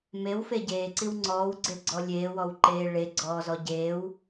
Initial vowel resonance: oral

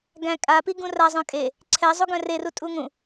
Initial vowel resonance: nasal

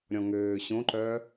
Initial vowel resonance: nasal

